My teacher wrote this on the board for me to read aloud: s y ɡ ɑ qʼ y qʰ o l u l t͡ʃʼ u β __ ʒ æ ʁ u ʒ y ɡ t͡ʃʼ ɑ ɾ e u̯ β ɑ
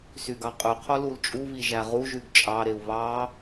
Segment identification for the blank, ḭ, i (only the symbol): i